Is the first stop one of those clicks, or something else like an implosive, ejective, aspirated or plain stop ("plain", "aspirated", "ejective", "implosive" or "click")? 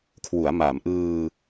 aspirated